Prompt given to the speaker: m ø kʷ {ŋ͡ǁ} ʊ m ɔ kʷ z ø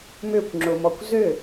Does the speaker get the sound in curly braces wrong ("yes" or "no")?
no